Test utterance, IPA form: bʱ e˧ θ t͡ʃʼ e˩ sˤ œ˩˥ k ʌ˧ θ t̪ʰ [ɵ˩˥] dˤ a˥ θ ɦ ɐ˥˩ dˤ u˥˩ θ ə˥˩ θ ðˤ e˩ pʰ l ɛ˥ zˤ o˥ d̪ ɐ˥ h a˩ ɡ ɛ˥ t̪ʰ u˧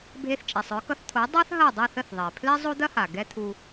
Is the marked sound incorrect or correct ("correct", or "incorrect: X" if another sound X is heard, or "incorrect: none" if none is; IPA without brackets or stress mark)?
incorrect: o˩˥